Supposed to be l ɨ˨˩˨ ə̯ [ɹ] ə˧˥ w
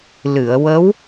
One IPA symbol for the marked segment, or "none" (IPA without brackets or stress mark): w